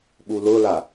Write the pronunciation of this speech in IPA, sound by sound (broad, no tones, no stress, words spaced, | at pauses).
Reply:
ɓulʊla